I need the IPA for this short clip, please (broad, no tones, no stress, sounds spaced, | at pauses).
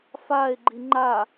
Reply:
f a e̯ ɡ͡ǃ i ŋ͡ǃ a